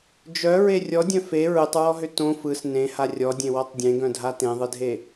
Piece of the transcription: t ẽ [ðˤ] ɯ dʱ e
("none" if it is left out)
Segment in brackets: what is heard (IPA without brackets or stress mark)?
ðˤ